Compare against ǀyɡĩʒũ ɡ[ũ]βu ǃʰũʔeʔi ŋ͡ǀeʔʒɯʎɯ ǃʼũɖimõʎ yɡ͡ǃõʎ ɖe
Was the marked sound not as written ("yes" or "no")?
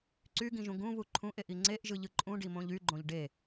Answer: no